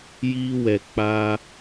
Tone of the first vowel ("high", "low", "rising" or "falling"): high